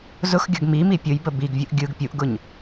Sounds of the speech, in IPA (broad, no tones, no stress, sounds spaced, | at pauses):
z ʊ x ɡʲ ʌ ɡ m i m i pʲ ʊ j b ə b i ɡ vʲ ʊ ʔ ɡʲ ɯ ɡ pʲ u ʔ ɡ ʊ ɲ